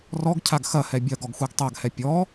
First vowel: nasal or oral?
oral